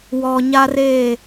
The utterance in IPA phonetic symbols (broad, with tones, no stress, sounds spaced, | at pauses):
w ɔ˨ ɲ a˦ r eː˦˨